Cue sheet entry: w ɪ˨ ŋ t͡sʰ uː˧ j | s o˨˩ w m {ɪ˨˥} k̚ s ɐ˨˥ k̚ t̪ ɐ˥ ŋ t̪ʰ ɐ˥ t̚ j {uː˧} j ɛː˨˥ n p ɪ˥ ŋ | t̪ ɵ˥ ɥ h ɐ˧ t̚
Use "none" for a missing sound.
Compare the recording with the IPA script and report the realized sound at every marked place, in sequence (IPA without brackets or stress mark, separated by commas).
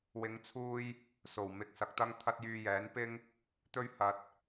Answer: ɪ˨˥, yː˧